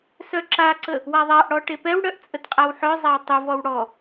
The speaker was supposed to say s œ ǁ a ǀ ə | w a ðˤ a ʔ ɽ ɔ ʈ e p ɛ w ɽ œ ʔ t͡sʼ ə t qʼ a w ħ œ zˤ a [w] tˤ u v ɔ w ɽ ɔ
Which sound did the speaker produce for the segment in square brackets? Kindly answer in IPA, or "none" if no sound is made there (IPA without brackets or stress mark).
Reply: w